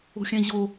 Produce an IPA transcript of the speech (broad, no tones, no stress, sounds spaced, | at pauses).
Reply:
o̤ xʲ æ̃ ʑ o